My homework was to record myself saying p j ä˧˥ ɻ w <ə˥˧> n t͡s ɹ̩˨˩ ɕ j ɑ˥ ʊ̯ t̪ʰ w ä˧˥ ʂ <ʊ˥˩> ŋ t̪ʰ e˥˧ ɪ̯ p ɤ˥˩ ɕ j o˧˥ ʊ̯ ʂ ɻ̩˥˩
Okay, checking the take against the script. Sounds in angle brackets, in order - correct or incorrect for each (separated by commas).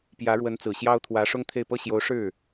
incorrect, incorrect